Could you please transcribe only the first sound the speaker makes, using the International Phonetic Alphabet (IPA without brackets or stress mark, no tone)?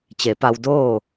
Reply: t͡ɕ